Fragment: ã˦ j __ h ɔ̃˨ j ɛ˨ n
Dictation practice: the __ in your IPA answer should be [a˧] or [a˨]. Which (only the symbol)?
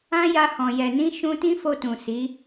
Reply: a˧